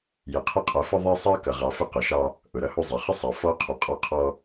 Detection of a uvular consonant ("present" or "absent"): present